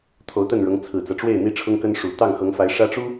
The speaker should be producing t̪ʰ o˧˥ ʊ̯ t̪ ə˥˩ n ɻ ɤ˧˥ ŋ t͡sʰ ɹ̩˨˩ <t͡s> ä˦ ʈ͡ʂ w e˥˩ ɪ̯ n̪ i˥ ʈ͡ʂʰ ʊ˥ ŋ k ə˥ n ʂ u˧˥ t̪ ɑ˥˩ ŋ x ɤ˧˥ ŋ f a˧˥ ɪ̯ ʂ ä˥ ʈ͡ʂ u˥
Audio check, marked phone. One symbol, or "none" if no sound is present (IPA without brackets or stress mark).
t͡s